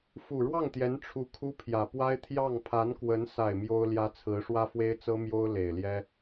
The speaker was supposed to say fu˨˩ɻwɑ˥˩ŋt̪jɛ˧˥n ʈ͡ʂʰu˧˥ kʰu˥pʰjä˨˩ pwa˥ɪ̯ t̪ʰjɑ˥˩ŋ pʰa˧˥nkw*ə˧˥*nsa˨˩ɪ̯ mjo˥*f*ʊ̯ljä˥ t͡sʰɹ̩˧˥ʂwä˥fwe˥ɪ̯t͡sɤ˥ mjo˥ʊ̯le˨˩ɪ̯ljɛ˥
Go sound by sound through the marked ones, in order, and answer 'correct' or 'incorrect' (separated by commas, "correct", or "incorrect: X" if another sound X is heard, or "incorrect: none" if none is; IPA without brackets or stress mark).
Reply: correct, incorrect: none